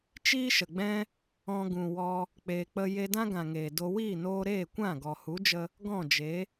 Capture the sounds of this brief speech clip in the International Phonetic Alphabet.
t͡ʃ iː˦ ʃ ə˨ ɡ͡b ɛ̃˦ | ɔ̃˧ ɡ ũ˨ w ɔ˧ | k͡p eː˧ k͡p ə˦ j e˧ d ã˦ ɡ ã˨ ŋ eː˨ d o˧ w iː˦˨ n oː˧ ɾ eː˦˨ kʷ ã˦˨ ɡ ɔ˨ h u˨˦ d͡ʒ ə˧ | ɡ ɔ̃˦˨ d͡ʒ e˨˦

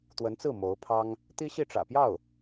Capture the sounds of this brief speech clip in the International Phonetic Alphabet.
t̪ w ə˧˥ n t͡s ɹ̩˥˩ m o˧˥ ʊ̯ pʰ ɑ˥ ŋ | t̪ i˥ ɕ i˥˩ ʈ͡ʂ ä̰˨˩ p j ɑ˥˩ ʊ̯

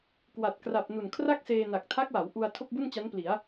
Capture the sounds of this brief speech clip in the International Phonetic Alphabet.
k w a˨˩ t̚ k r a˨˩ p̚ n u˨˩ n kʰ r a˥˩ k̚ s eː˧ n a˨˩ k̚ tʰ a˦˥ k̚ w a˩˦ w ʔ u˧ a̯ tʰ o˥˩ k̚ b u˥˩ n t͡ɕ a˦˥ n p l i˩˦ a̯

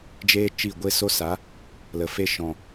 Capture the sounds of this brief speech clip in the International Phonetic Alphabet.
d͡ʒ eː˦ t͡ʃ i˦˨ ɡʷ e˦ s o˦ s a˨˦ | l ə˨ f e˦ ʃ ɔ̃˨

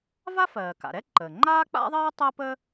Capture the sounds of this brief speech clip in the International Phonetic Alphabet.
v a˥ f ɜː˩ k a̰˩ ɾ ɛ˥ ǃ əː˩ ŋ͡ǃ aː˥ k͡p a̰˥ ðˤ ɜː˥ tˤ əː˥ p ə˥

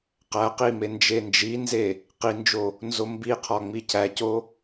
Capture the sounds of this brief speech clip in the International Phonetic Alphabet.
q æ q i m e n d͡ʒ e n d͡ʒ i n z e | q i n d͡ʒ o | n z o m b i qʰ ɒ ŋ͡m i cʰ æ c o

